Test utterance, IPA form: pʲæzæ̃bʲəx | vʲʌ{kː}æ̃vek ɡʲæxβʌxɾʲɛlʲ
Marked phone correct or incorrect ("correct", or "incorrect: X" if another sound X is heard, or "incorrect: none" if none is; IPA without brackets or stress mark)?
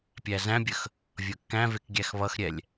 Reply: correct